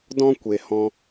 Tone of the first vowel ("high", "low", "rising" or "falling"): high